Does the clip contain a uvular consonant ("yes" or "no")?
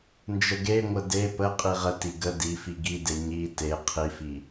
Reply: yes